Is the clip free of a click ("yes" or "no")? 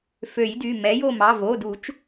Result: yes